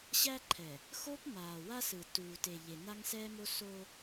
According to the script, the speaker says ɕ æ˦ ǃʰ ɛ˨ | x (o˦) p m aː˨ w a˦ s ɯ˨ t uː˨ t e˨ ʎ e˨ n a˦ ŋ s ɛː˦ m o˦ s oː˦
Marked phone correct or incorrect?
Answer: correct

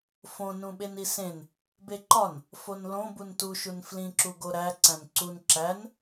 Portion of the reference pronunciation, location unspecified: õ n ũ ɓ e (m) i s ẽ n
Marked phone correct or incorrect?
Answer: incorrect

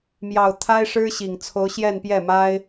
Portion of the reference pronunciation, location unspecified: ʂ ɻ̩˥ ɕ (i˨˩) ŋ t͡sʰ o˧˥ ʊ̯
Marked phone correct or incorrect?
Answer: correct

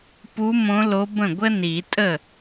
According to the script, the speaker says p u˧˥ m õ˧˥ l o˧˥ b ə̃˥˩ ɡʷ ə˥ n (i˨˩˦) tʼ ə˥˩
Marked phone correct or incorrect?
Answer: correct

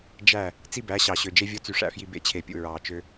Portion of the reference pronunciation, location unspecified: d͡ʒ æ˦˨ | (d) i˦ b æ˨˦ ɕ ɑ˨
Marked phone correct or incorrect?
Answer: incorrect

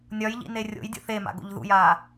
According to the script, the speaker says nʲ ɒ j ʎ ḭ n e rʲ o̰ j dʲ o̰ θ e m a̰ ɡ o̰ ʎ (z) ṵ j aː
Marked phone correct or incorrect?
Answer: incorrect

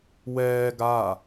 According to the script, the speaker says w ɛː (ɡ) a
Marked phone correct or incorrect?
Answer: correct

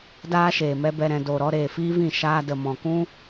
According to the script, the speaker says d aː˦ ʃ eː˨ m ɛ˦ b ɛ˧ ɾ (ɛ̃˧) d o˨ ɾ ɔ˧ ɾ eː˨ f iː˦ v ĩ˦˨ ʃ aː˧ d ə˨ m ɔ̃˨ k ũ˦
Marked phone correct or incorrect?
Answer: correct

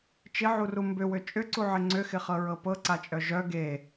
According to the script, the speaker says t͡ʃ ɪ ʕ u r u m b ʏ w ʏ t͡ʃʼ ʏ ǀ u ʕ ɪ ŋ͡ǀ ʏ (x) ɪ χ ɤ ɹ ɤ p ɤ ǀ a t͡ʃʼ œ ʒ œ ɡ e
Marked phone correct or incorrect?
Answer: correct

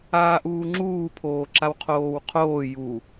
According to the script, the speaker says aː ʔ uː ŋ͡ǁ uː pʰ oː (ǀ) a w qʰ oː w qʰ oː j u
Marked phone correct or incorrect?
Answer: incorrect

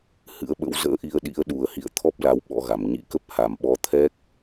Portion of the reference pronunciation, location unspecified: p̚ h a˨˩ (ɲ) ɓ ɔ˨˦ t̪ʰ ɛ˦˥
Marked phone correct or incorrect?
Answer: incorrect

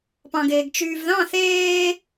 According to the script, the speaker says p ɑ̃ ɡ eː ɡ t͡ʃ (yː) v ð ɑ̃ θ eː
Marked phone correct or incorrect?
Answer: correct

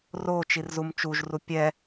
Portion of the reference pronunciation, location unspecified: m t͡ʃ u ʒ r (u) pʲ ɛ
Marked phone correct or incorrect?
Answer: correct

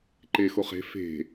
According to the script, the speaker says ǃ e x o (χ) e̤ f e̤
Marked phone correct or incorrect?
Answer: correct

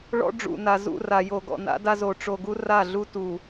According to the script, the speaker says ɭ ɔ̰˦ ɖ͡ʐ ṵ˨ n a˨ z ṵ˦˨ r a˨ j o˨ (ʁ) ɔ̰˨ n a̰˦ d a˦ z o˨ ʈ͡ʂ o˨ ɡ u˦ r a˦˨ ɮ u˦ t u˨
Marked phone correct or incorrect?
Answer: incorrect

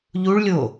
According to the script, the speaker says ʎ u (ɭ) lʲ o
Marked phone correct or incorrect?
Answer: correct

